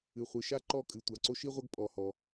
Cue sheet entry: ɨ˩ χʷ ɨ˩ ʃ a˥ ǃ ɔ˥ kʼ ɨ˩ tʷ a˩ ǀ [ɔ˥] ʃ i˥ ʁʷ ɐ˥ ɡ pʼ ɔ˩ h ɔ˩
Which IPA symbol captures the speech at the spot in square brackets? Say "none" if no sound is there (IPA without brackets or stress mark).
o˥